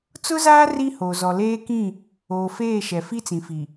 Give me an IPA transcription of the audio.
t͡s ʊ˦ z aː˦ r i˦ h o˨ z ɔ˨ l eː˦ k ĩ˦˨ | oː˨ f eː˦˨ ʃ ɛ˨ f i˦ t͡s ĩ˨ f i˨

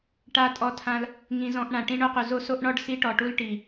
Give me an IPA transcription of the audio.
ʈ a˧ tʼ ɔ˧ tʰ ã˧ l | ŋ ĩ˧ z ɔ̃˧ ʔ ɳ ã˨ ʈ ĩ˧ ɳ o˧ q u˨ z o˦ s o˦ ʔ ɳ ɔ˦ ɖ s i˧ ʈ ɔ˨ ʈ u˧ l ʈ i˨

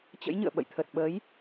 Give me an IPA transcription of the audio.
t͡ɕ ə̰˧˥ j ɲ ɨ̰˧˨ ə̯ ɓ ə̰˧˨ j t̪ʰ ə˨˩ t̚ ɓ ə˨˦ j

